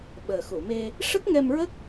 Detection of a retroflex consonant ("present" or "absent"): present